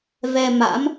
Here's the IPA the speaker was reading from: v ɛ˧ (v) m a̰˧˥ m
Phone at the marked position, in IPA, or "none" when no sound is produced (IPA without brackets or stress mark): none